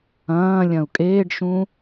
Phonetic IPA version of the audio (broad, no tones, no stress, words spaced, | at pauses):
ɐ̃ː lʲɐ̃u̯kʼeːɖʃũ